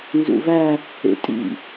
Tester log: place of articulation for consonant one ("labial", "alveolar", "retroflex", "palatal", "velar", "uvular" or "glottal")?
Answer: alveolar